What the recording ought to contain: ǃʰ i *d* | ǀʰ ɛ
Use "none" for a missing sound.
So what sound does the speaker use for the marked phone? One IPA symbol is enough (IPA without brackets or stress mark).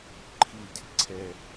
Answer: d